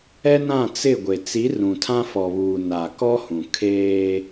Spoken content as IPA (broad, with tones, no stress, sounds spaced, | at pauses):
ɛ˦ n ã˦˨ t͡s ɪ˦˨ ɡʷ e˨ t͡s i˨˦ r ũ˨ tʰ ã˦ f ɔ˨ β uː˨ n a˨ k ɔ˦ h ũ˨ kʰ eː˦